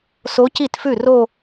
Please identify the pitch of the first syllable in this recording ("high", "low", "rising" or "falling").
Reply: rising